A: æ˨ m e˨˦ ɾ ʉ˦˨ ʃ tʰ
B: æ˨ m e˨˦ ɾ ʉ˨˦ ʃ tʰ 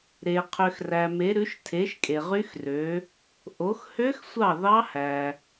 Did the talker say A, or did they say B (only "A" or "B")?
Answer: B